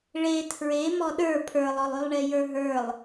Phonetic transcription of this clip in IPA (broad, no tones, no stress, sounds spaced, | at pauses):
ɭ e tʰ ɹ e m ɔ ɗ ə˞ pʰ ə˞ lˠ ɔ lˠ y lˠ ɳ e j ə˞ ɦ ə˞ lˠ